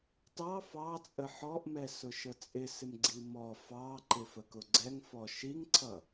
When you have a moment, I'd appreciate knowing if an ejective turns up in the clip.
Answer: yes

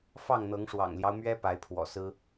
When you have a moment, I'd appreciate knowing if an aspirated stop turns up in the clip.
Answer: yes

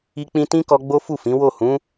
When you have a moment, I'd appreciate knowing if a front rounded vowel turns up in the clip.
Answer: no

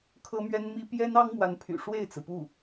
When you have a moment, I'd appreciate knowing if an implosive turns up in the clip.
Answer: no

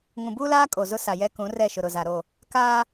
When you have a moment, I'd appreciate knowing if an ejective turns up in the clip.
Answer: yes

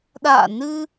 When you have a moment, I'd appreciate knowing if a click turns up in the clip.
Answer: no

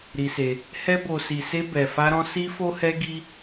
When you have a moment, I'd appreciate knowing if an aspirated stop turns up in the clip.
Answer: no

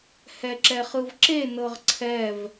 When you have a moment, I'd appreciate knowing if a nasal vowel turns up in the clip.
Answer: no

